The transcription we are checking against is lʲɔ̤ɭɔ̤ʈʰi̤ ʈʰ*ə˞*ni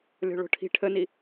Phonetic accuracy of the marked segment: incorrect: ə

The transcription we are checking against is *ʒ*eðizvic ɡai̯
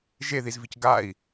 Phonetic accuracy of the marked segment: correct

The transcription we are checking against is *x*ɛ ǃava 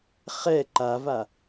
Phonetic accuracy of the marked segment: incorrect: χ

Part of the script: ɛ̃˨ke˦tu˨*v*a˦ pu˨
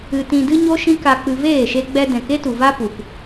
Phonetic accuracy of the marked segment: correct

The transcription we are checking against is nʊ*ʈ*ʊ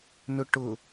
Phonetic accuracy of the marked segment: correct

